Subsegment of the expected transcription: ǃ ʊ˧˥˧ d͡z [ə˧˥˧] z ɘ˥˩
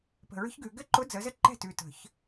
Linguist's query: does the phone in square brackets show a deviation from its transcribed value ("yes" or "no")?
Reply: yes